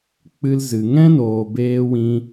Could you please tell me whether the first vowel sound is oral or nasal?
oral